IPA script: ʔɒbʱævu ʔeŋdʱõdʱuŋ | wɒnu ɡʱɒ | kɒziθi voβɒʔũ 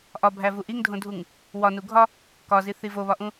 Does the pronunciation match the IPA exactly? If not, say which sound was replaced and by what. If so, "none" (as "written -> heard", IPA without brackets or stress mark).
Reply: e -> i